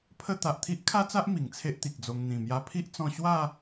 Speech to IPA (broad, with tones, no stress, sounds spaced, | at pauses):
pʰ ə˥˧ t̪ a˨ ʔ t̪ʰ i˦ ʔ kʰ a˦ t͡s a˦ ʔ m i˨˩ ŋ t͡sʰ e˦ ʔ t̪ i˨ k̚ d͡z o˧ ŋ n̪ ĩ˨˩ m j a˧ pʰ i˦ ʔ t͡s ɔ̃˧ ɕ w a˥˧